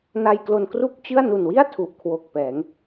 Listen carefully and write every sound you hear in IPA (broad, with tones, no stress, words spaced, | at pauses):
na˧jklo˧nkru˥˩k̚t͡ɕɯ˥˩a̯ nu˨˩nwi˥˩a̯ tʰu˨˩ʔkʰwo˨˩k̚ pɛː˩˦ŋ